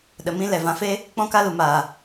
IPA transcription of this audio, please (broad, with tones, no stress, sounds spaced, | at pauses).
ɗ ə˨ m ĩ˦ l ɛ˨ v ã˧ f e˦ | k͡p ɔ̃˦ k a˦ l u˨ m aː˨